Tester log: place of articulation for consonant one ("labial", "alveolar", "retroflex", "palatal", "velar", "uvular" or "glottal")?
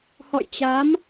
glottal